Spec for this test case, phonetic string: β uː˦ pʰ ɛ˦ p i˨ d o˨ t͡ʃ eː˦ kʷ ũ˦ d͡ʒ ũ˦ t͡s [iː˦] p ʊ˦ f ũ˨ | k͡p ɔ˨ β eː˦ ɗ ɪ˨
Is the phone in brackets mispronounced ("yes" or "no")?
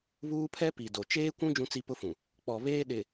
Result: yes